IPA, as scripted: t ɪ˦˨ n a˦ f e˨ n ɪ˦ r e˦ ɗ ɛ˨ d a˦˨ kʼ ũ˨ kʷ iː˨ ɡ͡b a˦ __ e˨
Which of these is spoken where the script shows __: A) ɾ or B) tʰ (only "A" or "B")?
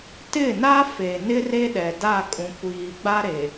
A